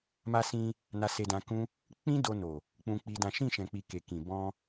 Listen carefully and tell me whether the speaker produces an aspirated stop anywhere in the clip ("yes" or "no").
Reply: no